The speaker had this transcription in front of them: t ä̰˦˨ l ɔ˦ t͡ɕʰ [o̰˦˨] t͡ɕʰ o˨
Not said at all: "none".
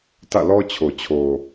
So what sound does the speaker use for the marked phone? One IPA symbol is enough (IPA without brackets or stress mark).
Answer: o˨